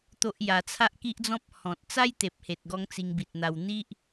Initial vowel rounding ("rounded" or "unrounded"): rounded